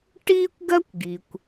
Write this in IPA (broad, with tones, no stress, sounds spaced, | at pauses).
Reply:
ʈ iː˥ kʷ ɡ ɜ˥ kʷ ɡ i˩ kʷ